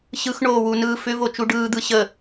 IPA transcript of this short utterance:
ɕ ɯ x ɳ oː w u n ɯː f ʏ v o t͡ʃ u ɖ ɯː d̪ ɯ ɕ ə

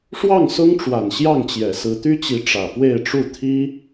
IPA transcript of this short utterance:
ʂ w ɑ˥˩ ŋ s ʊ˥ ŋ ʈ͡ʂ w a˨˩ n ɕ j ɑ˥˩ ŋ t͡ɕ j ɛ˨˩ s ɹ̩˧˥ t̪ y˥ t͡ɕ i˧˥ ʈ͡ʂ ä˨˩ p w e˥˧ ɪ̯ ʈ͡ʂ u˥˩ t̪ʰ i˥

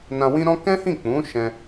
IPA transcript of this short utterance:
n ã˧ w ĩ˦ ɾ ɔ̃˦ k ɛ̃˦ h ĩ˦˨ k͡p ũ˨˦ ʃ ɛ̃˧

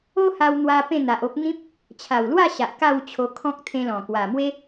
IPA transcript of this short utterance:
o˦ h a˧ w n̪ w a˧ p ẽ˥˧ n̪ a˨ ʔ o˦ p̚ n̪ ĩ˦ p̚ | t͡ɕʰ a˨˩ w l w a˥˧ ɕ a˨ ʔ k a˥˧ w t͡ɕʰ o˧ kʰ ɔ̃˦ k̚ t̪ʰ ẽ˧ l ɔ̃˨˩ k w a˨˩ m w e˦

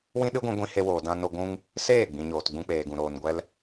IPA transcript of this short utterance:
w ĩ˦ ɗ ɨ˦ ɡʷ ĩ˧ ɡʷ ĩ˧ h e˧ w oː˨ d ã˦ n o˦ ɡʷ ũ˦ ŋ | s eː˦˨ ɡ͡b ĩ˨ ɲ oː˨ t ɡ͡b ũ˧ k͡p eː˨ ɡ ũ˨ ɾ oː˨ n ɡʷ ɛ˧ l

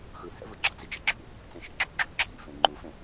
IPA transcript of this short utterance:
x ɯ h ɛ̰ v ɯ ɡ͡ǁ ʌ d͡z i d͡ʒ i ǁʰ ṵ | t͡s ẽ ʃ ḭ ɡ͡ǁ o ɡ͡ǁ o ǁʰ ḭ f ẽ ŋ͡ǃ u f ẽ

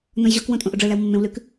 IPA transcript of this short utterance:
n õ j ʑ ɔ k w õ tʼ õ ʔ o ɖ͡ʐ ə˞ l æ w mː ẽ w l ʉ k

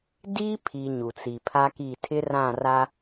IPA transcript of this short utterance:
d i˦ pʰ i˨ ɲ u˨ t͡s i˨ pʰ a˦ k i˦˨ tʰ ɪ˦ r ã˦˨ r a˦

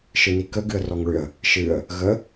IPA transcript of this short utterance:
ʃ ɨ n i k ə ɡ ɨ ə̯ r ɔ ŋ ɭ ʏ ə̯ | ʃ ɨ ə̯ | ɣ ə

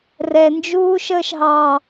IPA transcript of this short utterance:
r ɛ n d͡ʒ uː ʃ əː ʃ ɦ ɑ

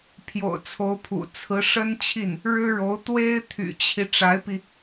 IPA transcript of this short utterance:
pʰ j o̰˨˩ ʊ̯ t͡sʰ o˧˥ ʊ̯ pʰ ṵ˨˩ t͡sʰ ɹ̩˧˥ ʂ ə˥ n t͡ɕʰ i˥˩ n | ɻ ɻ̩˥ ɻ o˧˥ ʊ̯ t̪ w e˥ ɪ̯ t̪ʰ y̰˨˩ t͡ɕʰ i˦ ʈ͡ʂ a˧˥ ɪ̯ p i˧

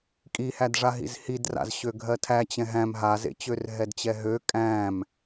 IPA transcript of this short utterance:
kʼ i h æ d ʐ a ɦ ḭ z h i d r a̰ z ɕ ø ɡʱ ɜ tʰ æ t͡ɕ ɛ̃ ɦ æ̃ m ɦ a z ḛ t͡ɕ ø r ɦ ɛ d t͡ɕ ɛ ɦ ø kʼ æ̃ m

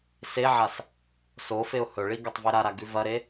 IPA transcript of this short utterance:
s e ʕ a s | s o f e ʊ̯ h ɵ ɭ i ɡ ɐ tˤ v e ɾ a ɾ a ɡ ʉ v ɐ ɾ e

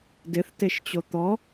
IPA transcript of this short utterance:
d ɪ θ t e ʃ t͡ɕ o t̪ ɔ

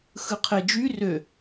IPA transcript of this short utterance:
x ɯ qʰ e d͡ʒ y r ø

